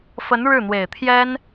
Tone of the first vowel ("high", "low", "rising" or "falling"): rising